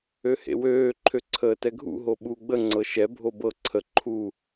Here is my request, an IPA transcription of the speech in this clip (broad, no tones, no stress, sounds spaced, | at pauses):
ø h ḛ w øː ǃʰ ø ǀʰ əː t ɛ ɡʱ ṵ ɦ o ɓ u ɡ͡b ə ŋ͡ǀ ɤ ʃ ɛ bʱ o b ɤ ǀʰ ə ǃʰ u